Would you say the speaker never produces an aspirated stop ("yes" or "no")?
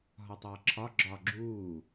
no